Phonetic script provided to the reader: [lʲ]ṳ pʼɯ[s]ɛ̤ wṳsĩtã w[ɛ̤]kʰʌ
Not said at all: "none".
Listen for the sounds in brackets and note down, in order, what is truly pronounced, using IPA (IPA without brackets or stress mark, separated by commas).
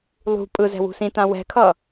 lˠ, z, ɛ̤